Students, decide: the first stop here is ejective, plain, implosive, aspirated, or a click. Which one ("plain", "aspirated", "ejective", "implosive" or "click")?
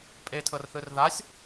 ejective